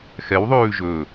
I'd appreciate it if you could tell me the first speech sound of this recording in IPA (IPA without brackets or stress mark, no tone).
x